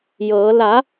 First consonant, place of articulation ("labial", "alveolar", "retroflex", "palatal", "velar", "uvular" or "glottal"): palatal